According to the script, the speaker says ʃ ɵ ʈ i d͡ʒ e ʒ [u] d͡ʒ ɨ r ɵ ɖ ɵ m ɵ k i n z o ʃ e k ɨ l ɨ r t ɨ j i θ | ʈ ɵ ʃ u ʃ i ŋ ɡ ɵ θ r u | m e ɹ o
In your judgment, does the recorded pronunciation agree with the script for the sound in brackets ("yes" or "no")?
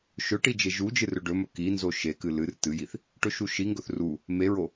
yes